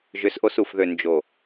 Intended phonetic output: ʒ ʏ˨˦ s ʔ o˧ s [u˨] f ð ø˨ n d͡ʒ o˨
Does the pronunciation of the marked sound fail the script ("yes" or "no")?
no